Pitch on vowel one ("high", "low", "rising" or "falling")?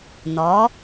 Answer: rising